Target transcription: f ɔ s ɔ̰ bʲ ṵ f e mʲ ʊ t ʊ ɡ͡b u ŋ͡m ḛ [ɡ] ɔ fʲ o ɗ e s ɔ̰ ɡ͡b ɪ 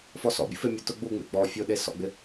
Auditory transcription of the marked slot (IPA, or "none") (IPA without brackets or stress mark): ɡ͡b